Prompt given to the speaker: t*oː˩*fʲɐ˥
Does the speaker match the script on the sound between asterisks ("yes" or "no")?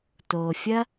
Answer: yes